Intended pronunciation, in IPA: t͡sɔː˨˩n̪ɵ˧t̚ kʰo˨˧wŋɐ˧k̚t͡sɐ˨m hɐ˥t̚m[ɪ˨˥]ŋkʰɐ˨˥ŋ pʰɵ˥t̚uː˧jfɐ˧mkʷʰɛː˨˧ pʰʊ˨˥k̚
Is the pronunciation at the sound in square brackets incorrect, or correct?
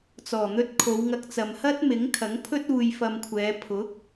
correct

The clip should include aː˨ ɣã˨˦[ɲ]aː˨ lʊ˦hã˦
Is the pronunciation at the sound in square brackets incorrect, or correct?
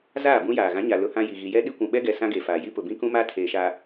correct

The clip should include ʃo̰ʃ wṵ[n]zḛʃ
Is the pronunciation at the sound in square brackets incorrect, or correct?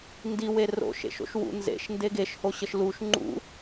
correct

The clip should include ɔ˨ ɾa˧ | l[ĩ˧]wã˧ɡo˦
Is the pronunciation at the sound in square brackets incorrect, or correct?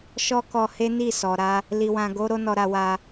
incorrect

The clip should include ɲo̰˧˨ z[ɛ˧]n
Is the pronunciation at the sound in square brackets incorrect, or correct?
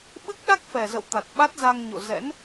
incorrect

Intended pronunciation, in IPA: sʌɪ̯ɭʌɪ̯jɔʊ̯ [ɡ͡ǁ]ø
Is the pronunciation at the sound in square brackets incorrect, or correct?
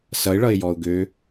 incorrect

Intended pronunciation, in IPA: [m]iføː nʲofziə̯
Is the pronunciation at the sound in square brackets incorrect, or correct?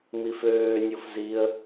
correct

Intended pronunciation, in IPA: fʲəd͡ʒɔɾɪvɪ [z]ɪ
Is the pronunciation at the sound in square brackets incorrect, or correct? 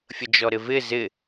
correct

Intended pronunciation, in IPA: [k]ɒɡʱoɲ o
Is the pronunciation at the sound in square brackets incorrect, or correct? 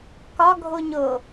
correct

